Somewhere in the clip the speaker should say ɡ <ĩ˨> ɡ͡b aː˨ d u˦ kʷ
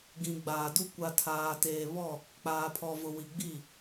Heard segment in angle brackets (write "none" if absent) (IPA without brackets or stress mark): ĩ˨